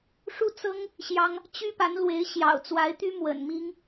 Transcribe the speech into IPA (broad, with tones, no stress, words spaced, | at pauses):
ʂu˥˩t͡sɤ˥ŋ | ɕjɑ˥ŋ | t͡ɕy˥pa˧˥nlwe˧˥ɪ̯ ɕjɑ̰˨˩ʊ̯t͡swa˧˥ɪ̯t̪y˥ mwə̰˨˩n mi˥ŋ